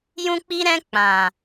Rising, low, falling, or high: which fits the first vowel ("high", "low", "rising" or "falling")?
high